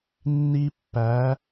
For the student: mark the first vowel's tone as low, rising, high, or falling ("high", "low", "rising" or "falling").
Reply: high